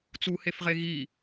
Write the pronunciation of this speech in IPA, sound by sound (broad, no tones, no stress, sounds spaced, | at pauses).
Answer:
t͡s u h e f ʁ e ɣ i